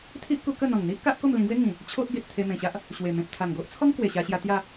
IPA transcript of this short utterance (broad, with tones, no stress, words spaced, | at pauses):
t̪ʰi˦ʔ ku˧kə˥˧ n̪ɔ̃˨˩ŋn̪i˦ʔka˦ʔ ko˥˧mlĩ˧ɡwe˦ ŋĩ˨˩ | t͡ɕʰo˦ʔɡe˨t̚ t̪ʰe˧mẽ˨˩ɕa˦ʔ | ɕwe˨˩ mẽ˨p̚t̪ʰa˨˩ŋɡo˦ʔ t͡sʰɔ˦ŋ kwe˨˩ɕa˧ɕja˧ t̪ja˥˧